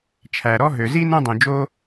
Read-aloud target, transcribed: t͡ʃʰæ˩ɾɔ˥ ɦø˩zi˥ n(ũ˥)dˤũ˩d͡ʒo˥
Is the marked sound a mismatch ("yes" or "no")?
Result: no